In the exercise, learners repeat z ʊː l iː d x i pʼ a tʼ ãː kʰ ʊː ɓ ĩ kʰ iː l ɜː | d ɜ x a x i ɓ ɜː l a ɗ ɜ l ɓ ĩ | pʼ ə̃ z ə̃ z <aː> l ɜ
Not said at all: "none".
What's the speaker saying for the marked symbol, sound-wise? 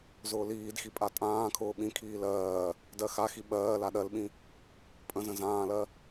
ãː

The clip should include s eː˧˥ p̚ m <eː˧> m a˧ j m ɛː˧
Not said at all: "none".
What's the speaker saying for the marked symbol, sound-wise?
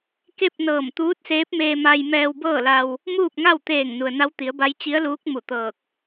eː˧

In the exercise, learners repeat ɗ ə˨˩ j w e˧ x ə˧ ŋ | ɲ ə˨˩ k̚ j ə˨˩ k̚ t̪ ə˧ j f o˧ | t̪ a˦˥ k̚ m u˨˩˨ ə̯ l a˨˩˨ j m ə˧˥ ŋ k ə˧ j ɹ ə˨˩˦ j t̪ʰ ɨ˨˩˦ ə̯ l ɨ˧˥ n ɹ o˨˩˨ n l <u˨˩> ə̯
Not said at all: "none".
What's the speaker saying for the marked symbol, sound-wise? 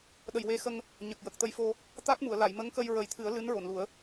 u˨˩˦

